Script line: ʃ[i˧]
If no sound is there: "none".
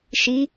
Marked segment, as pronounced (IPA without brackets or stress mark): i˧˥